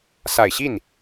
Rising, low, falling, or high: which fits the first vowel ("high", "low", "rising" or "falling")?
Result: low